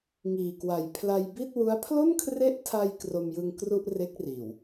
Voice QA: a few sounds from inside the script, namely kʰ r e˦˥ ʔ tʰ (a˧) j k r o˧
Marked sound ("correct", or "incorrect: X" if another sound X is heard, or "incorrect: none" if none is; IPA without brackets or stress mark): correct